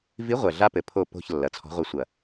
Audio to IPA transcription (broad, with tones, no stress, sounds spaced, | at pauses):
v i˧˥ ʁʷ ɛ˨˩ ɮ a˥ p ɘ˩˥ pʰ o˦˨ p o̤˦˨ ç lː ɐ˩˧ t͡sʰ ɔ̤˧˥ ʁʷ ɛ˧˥ sʷ ɐ˨˩